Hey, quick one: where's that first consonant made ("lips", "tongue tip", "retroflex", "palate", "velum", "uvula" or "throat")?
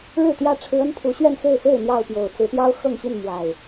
retroflex